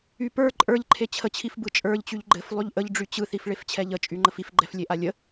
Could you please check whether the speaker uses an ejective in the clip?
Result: yes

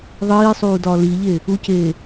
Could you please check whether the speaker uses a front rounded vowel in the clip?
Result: no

